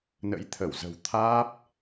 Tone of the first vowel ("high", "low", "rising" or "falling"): rising